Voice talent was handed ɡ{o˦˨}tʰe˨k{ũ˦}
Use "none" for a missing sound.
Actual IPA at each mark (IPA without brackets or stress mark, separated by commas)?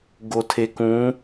o˨, ũ˨˦